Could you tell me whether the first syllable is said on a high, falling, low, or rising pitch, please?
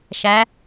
rising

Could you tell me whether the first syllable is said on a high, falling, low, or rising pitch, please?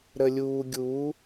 low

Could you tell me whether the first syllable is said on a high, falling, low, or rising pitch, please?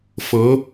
rising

